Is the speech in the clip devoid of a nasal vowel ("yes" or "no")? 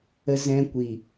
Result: no